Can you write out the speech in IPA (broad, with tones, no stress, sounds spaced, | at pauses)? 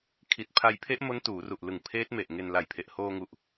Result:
kʰ i˨˩ t̚ pʰ a˧ j pʰ e˦˥ ʔ m o˦˥ n t uː˩˦ r u˨˩ ʔ l ɯ˨˩ ŋ pʰ eː˦˥ t̚ m e˨˩ ʔ ŋ e˧ n l a˨˩ j pʰ e˨˩ ʔ h oː˧ ŋ u˨˩ ʔ